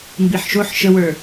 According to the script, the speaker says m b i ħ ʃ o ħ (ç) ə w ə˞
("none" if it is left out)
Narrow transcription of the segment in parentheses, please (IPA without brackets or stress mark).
ʃ